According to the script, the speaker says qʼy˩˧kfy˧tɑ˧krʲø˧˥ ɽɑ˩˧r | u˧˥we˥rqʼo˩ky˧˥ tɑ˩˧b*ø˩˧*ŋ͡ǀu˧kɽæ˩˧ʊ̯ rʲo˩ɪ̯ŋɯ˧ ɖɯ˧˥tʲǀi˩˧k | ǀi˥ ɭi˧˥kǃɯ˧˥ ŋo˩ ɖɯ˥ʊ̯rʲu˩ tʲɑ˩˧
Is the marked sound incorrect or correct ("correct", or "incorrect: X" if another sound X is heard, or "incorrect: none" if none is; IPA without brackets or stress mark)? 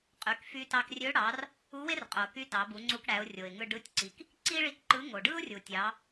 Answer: incorrect: u˩˧